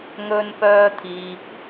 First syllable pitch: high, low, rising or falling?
high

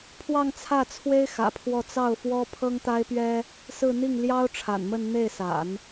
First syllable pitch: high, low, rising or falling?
falling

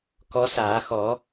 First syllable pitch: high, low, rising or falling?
rising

